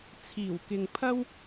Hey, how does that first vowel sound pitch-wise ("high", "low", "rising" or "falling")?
low